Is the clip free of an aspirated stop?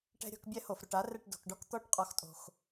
yes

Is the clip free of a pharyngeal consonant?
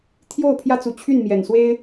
yes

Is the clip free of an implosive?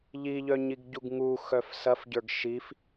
yes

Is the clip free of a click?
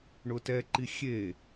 no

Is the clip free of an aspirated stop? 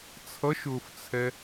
no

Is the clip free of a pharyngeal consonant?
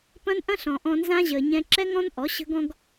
yes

